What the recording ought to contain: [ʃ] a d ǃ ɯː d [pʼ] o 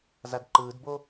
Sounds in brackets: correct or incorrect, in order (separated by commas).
incorrect, incorrect